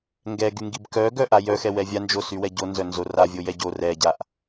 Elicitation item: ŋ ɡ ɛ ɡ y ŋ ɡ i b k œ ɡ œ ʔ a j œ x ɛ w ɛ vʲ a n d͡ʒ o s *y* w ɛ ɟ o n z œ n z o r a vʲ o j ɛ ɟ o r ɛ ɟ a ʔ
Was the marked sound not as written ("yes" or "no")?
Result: no